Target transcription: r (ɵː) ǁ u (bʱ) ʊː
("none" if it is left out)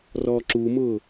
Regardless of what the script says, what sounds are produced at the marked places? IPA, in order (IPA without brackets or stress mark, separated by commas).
ɔː, m